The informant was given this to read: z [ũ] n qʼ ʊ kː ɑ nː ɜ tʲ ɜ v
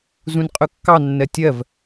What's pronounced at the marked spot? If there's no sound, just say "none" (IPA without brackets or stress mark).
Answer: ũ